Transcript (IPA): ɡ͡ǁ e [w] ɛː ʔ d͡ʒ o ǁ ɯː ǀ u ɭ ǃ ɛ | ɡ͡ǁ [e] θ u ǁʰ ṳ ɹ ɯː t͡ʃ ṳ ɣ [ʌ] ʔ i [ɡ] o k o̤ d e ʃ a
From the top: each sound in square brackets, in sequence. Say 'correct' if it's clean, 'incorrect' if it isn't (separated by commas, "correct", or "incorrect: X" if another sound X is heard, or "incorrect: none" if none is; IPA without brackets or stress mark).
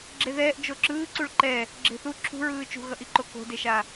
incorrect: ð, incorrect: e̤, correct, incorrect: ǃ